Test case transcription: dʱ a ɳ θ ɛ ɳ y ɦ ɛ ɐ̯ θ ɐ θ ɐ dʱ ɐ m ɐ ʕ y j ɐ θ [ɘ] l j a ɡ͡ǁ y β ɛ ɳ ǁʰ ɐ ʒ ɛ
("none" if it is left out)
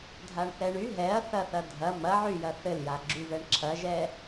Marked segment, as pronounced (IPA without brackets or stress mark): ɘ